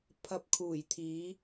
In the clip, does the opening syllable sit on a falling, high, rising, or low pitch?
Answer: low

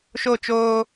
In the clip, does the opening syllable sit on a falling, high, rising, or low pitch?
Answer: falling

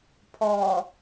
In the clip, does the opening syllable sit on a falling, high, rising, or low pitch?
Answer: low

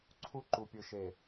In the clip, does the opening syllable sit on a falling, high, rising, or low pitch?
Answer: high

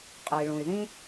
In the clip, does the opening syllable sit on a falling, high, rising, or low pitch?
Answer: low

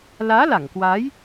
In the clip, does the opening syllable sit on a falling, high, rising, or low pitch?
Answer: rising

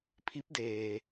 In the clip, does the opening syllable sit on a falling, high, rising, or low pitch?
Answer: rising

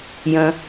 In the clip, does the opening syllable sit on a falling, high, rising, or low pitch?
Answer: low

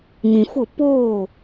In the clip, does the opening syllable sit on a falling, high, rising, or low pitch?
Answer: low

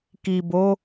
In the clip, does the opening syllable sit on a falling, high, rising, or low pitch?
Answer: low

